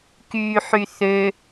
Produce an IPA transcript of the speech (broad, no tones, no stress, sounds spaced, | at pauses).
k yː ħ y θ ø